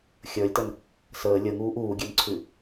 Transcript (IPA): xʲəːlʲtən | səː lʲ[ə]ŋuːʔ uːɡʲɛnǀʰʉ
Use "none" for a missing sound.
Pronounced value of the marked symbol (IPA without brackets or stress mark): ə